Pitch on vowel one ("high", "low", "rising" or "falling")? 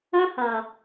high